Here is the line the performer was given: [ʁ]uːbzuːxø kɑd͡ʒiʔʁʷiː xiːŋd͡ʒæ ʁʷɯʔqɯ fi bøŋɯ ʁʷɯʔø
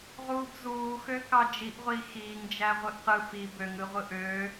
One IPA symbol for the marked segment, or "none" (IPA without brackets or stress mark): ʁ